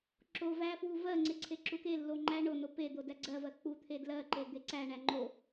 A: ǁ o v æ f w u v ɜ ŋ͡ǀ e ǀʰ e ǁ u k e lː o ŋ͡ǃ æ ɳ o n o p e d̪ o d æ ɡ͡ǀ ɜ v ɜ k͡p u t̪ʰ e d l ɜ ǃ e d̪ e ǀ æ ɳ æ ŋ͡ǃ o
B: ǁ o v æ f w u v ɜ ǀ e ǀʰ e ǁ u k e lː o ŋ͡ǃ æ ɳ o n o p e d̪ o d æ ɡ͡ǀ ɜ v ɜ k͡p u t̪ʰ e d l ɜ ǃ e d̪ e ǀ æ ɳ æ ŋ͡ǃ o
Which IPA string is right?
A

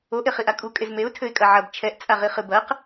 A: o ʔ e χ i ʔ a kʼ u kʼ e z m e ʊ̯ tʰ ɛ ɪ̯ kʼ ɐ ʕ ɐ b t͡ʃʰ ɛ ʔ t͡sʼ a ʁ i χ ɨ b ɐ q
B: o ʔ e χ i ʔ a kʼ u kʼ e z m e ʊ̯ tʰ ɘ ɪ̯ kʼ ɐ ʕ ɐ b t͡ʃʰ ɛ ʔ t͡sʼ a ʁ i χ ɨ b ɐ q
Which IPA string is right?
B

